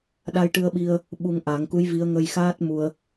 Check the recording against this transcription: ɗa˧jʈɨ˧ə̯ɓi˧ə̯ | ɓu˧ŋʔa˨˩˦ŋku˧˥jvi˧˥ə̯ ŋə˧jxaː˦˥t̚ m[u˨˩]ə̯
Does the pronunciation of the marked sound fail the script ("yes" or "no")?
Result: yes